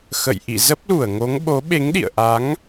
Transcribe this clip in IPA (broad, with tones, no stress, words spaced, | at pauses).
xə̰˧˨j ʔḭ˧˨ zə˦˥p̚lu˧˩ə̯ŋo˨˦ŋ ɓo˨˦ɓe˨˦ŋɗḭ˧˨ə̯ʔa˨˦ŋ